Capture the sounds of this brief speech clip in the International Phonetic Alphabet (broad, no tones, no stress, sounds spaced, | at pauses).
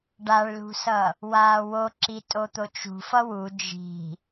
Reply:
ɖ a ɭ l ṳ s ʌ | w aː w o ǁ i tʼ o t̪ o t͡ʃ ṳ f ʌ w u d͡ʒ i̤